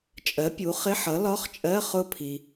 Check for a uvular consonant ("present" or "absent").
present